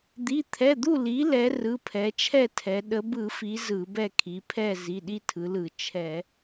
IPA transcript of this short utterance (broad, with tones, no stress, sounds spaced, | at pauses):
d̪ i˩˧˩ t̪ʰ ɛ˩˧˩ d̪ u˥˨ l i˩˧ l ɛ˩˧ r ɯ˩˧˩ pʰ ɛ˩˧ t͡ʃʰ ɛ˥˨ tʰ ɛ˩˧ ɗ ə˩˧ b ɯ˧˩˧ f i˩˧ z ɯ˧˩˧ b ɛ˥˨ kʰ i˩˧ pʰ ɛ˥˨ z i˩˧˩ ɗ i˥˨ tʰ ɯ˩˧ l ɯ˧˩˧ t͡ʃʰ ɛ˧˩˧